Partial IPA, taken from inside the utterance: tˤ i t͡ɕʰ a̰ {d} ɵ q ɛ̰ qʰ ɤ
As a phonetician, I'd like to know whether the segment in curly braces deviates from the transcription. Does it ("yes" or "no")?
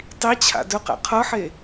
no